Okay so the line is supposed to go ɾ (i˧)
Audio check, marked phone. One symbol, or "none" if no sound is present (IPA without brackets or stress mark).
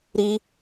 i˧